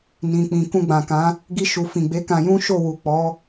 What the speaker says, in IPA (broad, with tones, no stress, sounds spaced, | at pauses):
n ĩ˨ k͡p ĩ˨ k ũ˧ ɡ͡b ã˨ k ã˨˦ | ɡ i˧ ʃ u˨ f ĩ˨ ɡ͡b e˨˦ k ã˧ j ũ˦ ʃ o˦˨ w u˨ k͡p ɔ˨˦